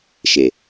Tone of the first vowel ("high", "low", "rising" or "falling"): low